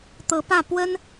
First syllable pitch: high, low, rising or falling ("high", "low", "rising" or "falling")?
rising